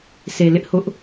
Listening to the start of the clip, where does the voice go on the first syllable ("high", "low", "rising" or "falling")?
low